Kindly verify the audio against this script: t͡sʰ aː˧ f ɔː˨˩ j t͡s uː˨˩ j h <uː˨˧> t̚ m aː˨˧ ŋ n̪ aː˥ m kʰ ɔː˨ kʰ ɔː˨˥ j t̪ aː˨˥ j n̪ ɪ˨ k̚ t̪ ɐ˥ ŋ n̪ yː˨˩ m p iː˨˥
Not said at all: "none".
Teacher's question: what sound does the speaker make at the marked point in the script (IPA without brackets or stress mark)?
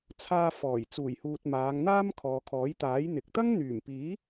uː˨